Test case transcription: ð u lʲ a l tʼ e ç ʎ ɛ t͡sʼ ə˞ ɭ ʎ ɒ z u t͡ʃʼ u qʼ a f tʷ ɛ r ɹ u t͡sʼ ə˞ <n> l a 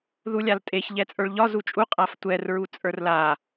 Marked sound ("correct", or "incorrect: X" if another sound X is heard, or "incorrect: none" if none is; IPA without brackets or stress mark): incorrect: r